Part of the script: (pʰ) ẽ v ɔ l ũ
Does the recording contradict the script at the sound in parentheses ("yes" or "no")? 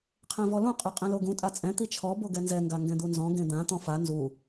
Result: yes